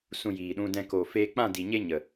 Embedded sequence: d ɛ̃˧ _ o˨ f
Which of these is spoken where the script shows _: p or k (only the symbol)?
k